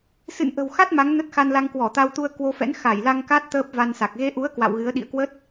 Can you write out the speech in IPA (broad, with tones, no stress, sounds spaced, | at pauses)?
s ɨ̰˧˨ n ʔ ə̤˨˩ w x a˦˥ t̚ m a˨˦ ŋ n ə˦˥ t̚ x a˧ n l a˧ ŋ k w ɔ˧˩ t̪ a˧ w t̪ u˧ ə̯ k w o˧ f ɛ̰˧˥ n x a˧˩ j l a˧ ŋ k a˦˥ t̚ t̪ əː˦˥ p̚ v a˧ n s a˨˩ k̚ ɣ e˧ ʔ u˨˦ ə̯ k w a̰˧˨ w ɣ ɨ˨˦ ə̯ ɗ ḭ˧˨ ə̯ k w ə˦˥ t̚